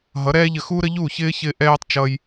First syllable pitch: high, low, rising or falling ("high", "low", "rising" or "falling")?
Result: rising